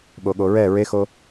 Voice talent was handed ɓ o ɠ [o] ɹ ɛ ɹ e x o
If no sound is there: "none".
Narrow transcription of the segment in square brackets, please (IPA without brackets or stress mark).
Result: o